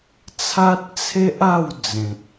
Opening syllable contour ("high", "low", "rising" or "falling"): high